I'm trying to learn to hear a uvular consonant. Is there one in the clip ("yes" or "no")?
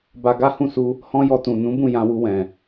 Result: no